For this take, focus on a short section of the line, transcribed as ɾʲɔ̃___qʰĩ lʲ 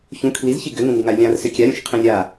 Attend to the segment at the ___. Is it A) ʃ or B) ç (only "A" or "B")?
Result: A